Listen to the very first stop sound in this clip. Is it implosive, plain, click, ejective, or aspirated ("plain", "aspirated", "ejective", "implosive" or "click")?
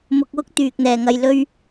plain